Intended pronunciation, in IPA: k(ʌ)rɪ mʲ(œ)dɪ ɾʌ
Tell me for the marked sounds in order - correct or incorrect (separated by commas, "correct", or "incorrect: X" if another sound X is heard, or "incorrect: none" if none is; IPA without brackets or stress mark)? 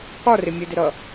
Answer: incorrect: ɒ, incorrect: ə